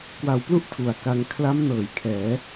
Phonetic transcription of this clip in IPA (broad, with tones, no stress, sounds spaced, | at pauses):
k w a˨˩ w p l u˥˩ ʔ tʰ u˩˦ a̯ k a˧ ŋ kʰ l a˦˥ m n ɤː˩˦ j kʰ ɛː˩˦